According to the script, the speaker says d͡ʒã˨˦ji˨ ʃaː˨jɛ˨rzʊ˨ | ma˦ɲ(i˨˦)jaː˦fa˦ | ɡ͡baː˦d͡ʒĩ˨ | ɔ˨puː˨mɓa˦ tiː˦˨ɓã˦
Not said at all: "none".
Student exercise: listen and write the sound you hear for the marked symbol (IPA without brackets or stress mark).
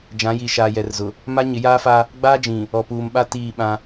ɪ˨˦